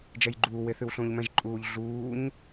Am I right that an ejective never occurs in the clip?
no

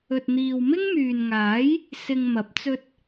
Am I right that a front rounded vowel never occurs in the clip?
no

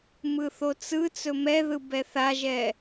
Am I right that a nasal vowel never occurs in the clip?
yes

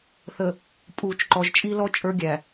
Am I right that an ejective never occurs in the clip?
no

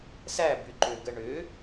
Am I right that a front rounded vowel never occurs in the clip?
no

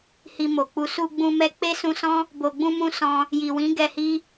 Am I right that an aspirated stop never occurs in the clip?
yes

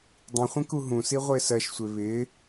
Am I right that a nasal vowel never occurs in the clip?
no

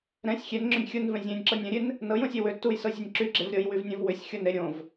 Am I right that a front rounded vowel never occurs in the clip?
no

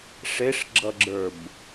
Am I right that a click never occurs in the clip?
no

